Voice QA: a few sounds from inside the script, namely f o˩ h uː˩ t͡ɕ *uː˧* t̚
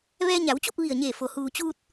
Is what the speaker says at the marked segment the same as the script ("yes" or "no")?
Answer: yes